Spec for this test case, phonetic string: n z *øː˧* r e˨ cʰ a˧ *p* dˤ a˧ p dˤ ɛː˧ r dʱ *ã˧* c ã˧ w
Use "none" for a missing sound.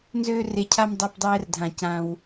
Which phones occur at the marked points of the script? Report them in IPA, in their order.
øː˧, m, ã˨

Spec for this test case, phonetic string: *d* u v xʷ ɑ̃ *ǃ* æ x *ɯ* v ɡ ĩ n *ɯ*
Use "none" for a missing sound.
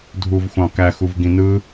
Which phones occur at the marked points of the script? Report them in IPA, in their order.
dʱ, k, u, ɯ

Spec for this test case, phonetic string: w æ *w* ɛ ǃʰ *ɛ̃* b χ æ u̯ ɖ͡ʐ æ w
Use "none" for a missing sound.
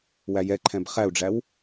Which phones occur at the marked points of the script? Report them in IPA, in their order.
j, ɛ̃

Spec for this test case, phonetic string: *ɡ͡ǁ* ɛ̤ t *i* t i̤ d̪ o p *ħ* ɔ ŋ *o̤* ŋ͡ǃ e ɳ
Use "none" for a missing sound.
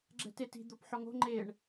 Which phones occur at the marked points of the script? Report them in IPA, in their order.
ɡ͡ǁ, e, ħ, o̤

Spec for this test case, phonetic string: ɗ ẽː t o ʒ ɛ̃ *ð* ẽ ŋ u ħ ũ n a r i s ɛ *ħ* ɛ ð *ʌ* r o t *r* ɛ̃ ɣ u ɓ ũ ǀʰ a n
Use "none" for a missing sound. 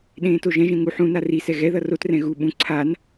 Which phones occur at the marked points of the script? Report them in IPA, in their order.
ʒ, ɣ, ʌ, r

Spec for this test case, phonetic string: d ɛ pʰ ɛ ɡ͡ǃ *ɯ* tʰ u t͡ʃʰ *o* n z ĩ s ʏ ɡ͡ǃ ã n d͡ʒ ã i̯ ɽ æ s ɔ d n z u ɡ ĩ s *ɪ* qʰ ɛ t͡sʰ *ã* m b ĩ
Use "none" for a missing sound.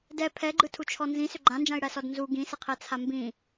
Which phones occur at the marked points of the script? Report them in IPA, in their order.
ɯ, ɔ, ɪ, a

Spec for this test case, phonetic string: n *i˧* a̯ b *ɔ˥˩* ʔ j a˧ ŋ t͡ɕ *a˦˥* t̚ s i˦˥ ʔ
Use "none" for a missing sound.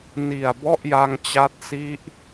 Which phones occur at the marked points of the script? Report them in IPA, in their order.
i˨˩, ɔ˥˩, a˦˥

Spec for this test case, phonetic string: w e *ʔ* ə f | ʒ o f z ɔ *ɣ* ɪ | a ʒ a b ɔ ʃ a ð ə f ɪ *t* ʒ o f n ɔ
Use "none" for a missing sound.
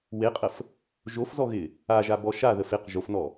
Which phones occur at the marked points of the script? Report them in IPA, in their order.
qʼ, ɣ, q

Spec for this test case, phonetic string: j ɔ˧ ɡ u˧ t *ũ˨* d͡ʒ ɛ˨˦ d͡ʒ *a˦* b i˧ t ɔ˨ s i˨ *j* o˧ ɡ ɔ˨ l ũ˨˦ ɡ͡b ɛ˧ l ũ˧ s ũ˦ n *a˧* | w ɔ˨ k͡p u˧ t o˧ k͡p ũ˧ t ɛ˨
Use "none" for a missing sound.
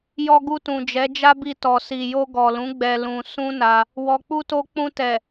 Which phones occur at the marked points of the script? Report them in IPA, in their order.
ũ˨, a˦, j, a˧

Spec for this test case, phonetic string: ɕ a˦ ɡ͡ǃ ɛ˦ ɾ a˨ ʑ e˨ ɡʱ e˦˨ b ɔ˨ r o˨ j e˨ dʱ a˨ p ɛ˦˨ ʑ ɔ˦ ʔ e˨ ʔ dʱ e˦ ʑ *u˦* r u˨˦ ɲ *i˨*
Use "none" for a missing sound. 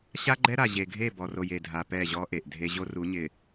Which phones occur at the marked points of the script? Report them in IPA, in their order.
o˦, ɪ˨

